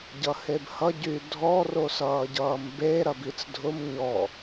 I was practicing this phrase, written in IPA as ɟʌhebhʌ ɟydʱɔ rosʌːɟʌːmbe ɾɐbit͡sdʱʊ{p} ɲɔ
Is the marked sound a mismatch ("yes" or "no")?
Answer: yes